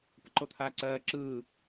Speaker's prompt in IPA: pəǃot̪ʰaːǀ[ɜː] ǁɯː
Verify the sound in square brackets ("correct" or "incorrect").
correct